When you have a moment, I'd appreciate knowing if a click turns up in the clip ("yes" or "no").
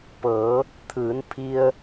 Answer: no